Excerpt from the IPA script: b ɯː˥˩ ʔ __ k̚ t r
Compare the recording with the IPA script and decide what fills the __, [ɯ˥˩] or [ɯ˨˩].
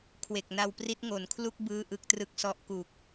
ɯ˥˩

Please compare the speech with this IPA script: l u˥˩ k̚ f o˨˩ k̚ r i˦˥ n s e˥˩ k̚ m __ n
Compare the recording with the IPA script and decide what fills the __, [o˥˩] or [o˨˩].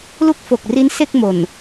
o˨˩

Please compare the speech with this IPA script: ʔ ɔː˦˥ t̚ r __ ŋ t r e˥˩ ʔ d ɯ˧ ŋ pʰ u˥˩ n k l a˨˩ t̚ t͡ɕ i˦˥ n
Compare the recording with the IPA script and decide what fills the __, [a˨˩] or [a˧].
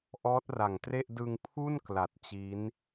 a˨˩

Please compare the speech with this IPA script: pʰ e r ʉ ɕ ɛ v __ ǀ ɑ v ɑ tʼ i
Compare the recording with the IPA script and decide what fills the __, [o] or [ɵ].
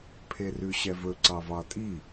ɵ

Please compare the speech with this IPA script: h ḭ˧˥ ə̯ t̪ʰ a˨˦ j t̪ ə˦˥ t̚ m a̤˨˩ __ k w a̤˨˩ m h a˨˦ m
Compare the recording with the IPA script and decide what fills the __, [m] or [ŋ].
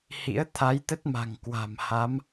ŋ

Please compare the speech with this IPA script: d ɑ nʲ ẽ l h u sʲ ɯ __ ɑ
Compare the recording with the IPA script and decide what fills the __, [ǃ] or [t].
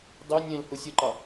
ǃ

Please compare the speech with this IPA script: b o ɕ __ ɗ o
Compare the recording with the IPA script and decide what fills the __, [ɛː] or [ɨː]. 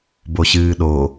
ɨː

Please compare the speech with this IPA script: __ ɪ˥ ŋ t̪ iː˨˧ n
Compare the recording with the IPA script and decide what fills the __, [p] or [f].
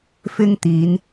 f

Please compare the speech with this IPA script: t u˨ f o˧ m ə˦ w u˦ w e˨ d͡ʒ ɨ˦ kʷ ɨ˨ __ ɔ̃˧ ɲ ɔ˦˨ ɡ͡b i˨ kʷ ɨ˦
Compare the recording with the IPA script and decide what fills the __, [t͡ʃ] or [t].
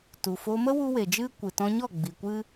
t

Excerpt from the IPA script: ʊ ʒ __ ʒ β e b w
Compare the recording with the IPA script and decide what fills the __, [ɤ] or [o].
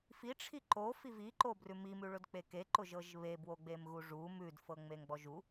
ɤ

